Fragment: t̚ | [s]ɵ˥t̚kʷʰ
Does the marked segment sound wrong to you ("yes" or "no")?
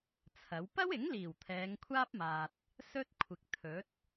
no